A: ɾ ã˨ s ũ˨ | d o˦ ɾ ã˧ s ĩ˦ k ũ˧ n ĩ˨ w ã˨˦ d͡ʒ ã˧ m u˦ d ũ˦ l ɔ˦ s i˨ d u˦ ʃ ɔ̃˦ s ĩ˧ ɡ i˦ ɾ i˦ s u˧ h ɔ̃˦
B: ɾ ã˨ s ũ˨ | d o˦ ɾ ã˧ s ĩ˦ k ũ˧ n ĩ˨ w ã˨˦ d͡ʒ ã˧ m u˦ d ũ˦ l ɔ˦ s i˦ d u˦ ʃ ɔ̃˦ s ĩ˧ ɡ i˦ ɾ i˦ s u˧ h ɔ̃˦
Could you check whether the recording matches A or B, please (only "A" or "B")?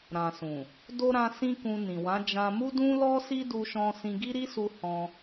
B